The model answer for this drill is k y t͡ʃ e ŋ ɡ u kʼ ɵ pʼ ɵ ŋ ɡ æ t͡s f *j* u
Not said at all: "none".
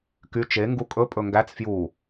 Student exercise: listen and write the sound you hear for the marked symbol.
j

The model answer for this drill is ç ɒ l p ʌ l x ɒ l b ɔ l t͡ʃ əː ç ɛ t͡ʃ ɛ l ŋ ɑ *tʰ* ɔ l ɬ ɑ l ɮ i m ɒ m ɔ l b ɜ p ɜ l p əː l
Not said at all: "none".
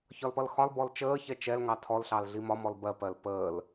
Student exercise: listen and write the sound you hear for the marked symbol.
tʰ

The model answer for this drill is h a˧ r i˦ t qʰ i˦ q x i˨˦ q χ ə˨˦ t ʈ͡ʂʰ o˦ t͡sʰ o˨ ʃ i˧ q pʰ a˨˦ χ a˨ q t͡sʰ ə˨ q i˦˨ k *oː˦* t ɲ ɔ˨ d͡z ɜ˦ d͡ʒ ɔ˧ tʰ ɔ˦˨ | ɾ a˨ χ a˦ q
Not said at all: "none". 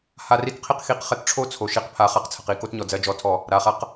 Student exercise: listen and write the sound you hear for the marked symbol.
o˦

